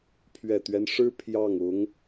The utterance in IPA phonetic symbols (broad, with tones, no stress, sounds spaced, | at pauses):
pʰ ɥ ɛ˨˩ t̪ ɥ ɛ˦ n ʂ ɻ̩˥ pʰ j ɑ˥˩ ŋ ʊ˧˥ ŋ